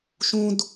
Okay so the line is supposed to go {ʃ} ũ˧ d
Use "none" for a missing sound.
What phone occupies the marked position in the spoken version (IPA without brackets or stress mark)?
ʃ